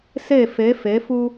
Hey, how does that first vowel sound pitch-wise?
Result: falling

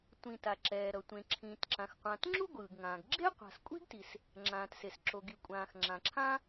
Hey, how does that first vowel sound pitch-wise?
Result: low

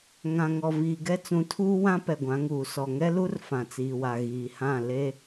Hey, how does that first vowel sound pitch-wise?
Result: low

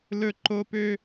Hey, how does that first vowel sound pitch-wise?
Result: high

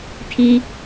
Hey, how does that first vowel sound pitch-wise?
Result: high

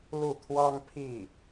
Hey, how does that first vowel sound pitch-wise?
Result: falling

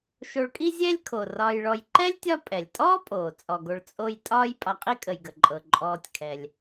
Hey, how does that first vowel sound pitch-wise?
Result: low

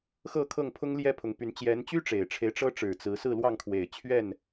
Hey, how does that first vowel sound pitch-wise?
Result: falling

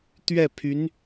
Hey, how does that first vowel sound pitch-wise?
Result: falling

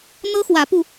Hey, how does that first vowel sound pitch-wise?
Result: high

